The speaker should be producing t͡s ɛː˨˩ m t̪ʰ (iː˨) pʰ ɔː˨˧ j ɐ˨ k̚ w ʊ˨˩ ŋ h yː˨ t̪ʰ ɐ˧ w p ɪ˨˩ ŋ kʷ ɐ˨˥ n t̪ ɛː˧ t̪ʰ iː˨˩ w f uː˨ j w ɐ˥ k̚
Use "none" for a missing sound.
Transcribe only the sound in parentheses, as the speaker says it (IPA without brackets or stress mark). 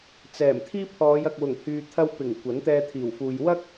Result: iː˥